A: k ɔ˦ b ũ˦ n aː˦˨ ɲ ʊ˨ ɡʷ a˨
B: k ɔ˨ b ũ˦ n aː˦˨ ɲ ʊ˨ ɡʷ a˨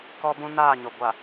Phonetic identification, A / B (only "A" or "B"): A